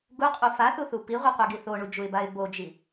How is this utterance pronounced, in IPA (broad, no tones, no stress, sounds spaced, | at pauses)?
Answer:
ɡ u qʼ u f a θ u θ u p i ʁʷ i qʷ e ɡ i θ o ɳ u d͡ʒ u ɪ̯ b a ɪ̯ b o d͡ʒ i